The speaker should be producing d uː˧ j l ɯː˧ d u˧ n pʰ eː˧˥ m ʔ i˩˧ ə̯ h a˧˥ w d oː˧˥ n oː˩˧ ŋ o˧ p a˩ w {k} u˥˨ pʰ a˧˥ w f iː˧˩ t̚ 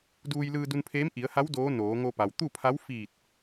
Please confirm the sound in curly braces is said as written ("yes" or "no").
no